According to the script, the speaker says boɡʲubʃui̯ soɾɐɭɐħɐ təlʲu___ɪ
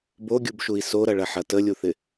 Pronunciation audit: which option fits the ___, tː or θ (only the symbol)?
θ